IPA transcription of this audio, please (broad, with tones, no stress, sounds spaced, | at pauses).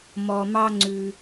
m ɔ˧ m ɑ˥ ŋ͡ǀ ʉ˧